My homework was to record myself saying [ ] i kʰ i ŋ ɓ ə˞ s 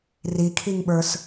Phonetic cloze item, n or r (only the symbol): r